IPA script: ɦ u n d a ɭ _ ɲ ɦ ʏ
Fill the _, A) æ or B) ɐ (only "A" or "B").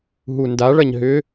B